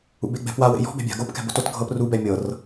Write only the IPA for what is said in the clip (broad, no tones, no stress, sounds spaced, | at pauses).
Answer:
ṵ b e ɡ͡b ɛ̤ p w a w ḛ j ɔ̤ b ɛ̤ bʲ a̤ ɡ o p k ɛ̤ b o t o t ɡʱ ɤ p r u b ɛ mʲ ɤ r